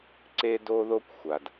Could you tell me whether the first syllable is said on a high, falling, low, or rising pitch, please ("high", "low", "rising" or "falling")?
high